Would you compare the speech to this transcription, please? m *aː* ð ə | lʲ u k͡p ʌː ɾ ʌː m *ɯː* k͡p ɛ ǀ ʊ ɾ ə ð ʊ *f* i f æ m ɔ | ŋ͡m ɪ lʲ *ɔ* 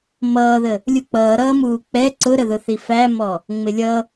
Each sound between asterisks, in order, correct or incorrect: incorrect, incorrect, incorrect, incorrect

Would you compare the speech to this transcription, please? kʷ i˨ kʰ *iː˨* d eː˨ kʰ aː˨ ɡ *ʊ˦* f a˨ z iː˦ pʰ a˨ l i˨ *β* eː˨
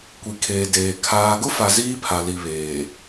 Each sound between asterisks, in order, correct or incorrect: incorrect, correct, correct

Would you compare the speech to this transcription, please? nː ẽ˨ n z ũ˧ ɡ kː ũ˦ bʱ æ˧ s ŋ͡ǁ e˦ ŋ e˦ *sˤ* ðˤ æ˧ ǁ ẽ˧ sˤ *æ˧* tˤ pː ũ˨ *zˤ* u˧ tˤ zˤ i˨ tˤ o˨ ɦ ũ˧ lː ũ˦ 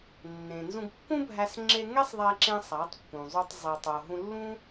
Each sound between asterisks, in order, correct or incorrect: correct, incorrect, correct

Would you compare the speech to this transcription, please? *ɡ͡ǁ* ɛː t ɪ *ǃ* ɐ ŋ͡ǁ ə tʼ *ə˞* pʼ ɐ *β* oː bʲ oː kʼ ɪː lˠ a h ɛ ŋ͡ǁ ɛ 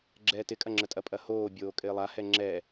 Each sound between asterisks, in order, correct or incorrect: correct, incorrect, incorrect, incorrect

